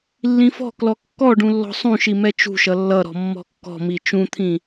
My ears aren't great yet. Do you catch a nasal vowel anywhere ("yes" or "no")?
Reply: yes